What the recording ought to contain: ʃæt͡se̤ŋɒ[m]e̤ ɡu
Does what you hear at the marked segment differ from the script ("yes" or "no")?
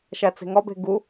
yes